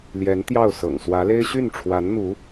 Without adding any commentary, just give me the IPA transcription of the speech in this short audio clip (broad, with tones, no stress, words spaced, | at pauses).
ljɛ˧˥nt̪jɑ˥˩ʊ̯ sɤ̰˨˩ŋ swä˧˥le˥ɪ̯ ɕy˥˩nʈ͡ʂʰwa˧˥nn̪u˧˥